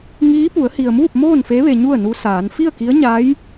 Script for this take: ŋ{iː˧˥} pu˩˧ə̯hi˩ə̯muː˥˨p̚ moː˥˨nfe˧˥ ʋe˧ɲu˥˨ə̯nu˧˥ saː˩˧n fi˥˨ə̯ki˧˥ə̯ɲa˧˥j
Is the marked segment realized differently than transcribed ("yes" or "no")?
no